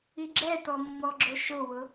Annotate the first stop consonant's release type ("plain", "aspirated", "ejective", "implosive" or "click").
click